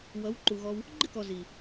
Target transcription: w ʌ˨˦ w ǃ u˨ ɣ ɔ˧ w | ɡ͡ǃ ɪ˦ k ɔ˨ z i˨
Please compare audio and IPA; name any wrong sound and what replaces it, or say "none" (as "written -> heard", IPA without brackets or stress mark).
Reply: none